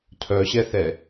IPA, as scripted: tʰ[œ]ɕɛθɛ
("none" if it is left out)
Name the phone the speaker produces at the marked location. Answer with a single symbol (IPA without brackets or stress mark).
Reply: œ